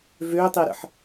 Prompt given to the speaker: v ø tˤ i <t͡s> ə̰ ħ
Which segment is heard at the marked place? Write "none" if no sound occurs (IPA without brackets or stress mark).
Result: ɾ